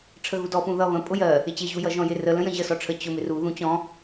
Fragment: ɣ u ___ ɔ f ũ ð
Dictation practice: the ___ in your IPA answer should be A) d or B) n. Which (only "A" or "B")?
A